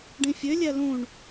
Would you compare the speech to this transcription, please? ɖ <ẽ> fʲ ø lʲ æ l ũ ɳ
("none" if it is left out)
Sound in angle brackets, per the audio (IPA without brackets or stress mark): ĩ